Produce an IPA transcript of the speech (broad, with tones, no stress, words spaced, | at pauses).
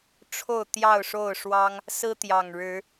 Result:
ʈ͡ʂʰo˥˨ʊ̯t̪jɑ˥˨ʊ̯ʂo˥˨ʊ̯ʂwɑ˦ŋ | sɹ̩˦ t̪jɑ˨˩ŋɻɻ̩˨˦